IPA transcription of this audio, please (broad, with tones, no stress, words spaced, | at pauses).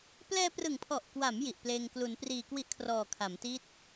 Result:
plɛː˧prɯ˨˩ŋpʰɔ˨˩ʔkwa˩˦m ji˨˩ʔpleː˧ŋ klu˩˦npriː˨˩kwi˦˥ʔkʰrɔː˨˩ kʰa˩˦mti˦˥t̚